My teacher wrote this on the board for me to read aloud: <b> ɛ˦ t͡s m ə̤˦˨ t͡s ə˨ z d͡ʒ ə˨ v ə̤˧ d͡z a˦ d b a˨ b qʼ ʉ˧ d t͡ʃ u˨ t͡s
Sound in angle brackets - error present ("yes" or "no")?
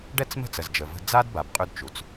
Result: yes